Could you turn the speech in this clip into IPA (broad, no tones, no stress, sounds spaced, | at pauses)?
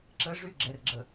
ǁ ə ʐ y ɡ͡ǁ ɛ r ɡ͡ǁ ə